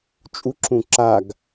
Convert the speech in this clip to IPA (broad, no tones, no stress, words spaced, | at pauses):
t͡ʃʼuǁũ ǁaɡ